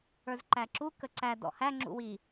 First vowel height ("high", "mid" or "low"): mid